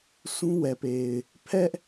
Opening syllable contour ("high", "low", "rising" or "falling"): high